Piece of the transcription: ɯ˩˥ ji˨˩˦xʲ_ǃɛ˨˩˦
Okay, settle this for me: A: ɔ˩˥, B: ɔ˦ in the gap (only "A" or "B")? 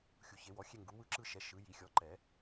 A